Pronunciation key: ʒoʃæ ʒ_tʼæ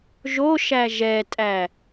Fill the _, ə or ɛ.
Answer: ɛ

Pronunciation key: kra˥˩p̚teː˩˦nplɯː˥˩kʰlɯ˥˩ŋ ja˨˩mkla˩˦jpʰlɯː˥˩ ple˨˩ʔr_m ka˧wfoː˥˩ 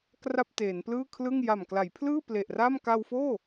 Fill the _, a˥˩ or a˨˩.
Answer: a˥˩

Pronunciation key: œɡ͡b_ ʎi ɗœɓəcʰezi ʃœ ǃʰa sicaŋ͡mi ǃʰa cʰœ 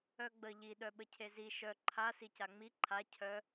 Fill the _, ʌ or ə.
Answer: ə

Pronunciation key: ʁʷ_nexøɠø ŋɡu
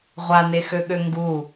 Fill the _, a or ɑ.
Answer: a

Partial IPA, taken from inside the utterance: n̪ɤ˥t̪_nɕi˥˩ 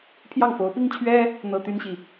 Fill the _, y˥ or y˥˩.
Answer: y˥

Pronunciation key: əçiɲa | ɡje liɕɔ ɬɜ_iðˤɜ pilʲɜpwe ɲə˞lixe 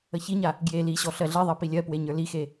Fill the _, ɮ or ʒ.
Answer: ɮ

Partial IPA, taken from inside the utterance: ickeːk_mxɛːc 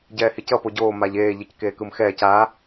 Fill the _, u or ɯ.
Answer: ɯ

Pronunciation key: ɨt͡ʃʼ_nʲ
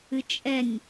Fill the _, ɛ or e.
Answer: ɛ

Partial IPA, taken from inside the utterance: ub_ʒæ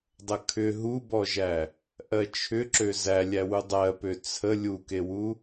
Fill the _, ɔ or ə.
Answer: ɔ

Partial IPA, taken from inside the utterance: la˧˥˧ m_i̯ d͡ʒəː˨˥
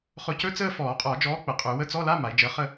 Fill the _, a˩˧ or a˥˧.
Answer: a˩˧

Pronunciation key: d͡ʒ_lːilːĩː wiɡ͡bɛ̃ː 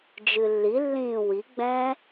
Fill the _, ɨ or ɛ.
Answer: ɨ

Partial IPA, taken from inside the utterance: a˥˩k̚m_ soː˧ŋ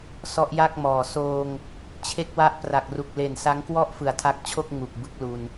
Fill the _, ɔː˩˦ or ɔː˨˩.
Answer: ɔː˨˩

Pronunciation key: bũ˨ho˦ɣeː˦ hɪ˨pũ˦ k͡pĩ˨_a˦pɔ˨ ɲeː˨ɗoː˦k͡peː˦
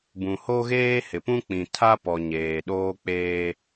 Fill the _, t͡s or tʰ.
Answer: tʰ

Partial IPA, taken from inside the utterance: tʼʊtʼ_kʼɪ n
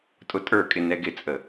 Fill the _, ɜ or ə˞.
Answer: ə˞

